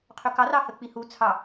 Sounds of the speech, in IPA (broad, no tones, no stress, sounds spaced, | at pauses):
qʰ ɵ k ɑ r ɑ h ə k͡p i h u t͡sʰ ɑ